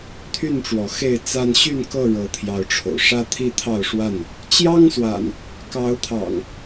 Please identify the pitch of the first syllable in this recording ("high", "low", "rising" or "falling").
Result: falling